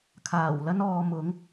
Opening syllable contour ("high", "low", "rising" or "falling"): low